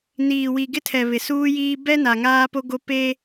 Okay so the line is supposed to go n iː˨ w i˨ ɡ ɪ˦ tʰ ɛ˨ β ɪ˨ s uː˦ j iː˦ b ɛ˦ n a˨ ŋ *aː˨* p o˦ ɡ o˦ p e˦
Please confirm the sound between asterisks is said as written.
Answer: no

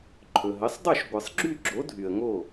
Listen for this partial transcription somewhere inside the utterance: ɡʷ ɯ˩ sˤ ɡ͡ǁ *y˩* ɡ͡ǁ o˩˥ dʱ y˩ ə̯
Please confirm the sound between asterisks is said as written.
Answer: no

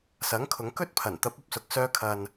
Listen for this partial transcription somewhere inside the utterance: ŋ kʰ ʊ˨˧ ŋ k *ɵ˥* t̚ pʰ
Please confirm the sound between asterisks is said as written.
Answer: yes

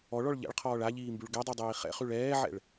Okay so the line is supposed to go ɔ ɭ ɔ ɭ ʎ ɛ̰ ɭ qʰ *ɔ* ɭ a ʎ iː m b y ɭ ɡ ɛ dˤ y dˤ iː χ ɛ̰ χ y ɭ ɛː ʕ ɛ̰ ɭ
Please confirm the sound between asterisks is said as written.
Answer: no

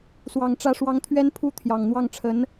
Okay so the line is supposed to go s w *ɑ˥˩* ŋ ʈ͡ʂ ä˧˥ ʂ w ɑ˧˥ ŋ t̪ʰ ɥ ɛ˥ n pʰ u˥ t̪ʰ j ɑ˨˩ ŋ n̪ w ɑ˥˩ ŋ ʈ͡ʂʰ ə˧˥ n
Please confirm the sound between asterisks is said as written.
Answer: no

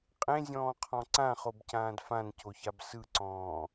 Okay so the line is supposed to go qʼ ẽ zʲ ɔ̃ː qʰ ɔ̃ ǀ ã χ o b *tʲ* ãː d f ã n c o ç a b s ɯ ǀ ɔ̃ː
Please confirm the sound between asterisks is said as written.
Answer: no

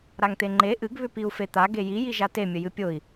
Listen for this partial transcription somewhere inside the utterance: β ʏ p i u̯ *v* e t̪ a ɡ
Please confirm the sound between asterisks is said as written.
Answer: no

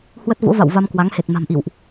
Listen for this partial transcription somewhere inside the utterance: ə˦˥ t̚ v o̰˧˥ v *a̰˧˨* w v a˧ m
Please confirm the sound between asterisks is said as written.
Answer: yes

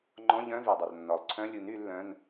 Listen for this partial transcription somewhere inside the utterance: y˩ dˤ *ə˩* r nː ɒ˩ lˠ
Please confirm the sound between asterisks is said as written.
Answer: yes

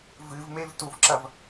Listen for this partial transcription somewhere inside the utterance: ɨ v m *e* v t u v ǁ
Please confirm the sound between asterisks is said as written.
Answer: yes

